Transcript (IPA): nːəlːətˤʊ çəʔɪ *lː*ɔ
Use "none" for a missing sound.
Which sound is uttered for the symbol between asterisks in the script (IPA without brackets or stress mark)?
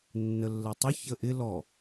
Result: l